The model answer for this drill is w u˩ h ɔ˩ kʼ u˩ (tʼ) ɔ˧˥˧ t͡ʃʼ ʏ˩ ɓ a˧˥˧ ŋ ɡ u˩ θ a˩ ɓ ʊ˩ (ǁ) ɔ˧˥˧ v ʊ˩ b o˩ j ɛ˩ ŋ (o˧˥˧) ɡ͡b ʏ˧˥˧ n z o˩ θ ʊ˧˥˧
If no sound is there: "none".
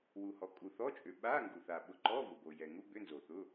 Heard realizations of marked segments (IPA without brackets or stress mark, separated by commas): θ, ǃ, u˧˥˧